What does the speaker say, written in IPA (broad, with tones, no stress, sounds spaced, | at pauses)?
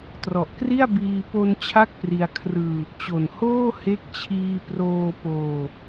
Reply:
t r ɔ˨˩ ʔ k r i˥˩ a̯ b iː˧ p o˧ n t͡ɕʰ a˥˩ k̚ p r i˧ a̯ kʰ r ɯː˧ | t͡ɕ o˨˩ n h oː˥˩ h e˦˥ k̚ t͡ɕʰ iː˧ p r oː˧ p oː˧